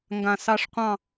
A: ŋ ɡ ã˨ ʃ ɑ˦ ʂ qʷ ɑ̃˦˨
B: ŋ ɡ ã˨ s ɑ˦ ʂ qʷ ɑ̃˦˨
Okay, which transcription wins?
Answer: B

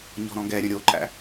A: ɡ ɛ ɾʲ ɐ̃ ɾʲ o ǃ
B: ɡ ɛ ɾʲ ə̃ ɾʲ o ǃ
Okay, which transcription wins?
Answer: B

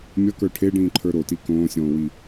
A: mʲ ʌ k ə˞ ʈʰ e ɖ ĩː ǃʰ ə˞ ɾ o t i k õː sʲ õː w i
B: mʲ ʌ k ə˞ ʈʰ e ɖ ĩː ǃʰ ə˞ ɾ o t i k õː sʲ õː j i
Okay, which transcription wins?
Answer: A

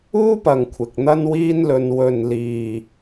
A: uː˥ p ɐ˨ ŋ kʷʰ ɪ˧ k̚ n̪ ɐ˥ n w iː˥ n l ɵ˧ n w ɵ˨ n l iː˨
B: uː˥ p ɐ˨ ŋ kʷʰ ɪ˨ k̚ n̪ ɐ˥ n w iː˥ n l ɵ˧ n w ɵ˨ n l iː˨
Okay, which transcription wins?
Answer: B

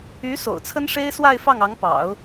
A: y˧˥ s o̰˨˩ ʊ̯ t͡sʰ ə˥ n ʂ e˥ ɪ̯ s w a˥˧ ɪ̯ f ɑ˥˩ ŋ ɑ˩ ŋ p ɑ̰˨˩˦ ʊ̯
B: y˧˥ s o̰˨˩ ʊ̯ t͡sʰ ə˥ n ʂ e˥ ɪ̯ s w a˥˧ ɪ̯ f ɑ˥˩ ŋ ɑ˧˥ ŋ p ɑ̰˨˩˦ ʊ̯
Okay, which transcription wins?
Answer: B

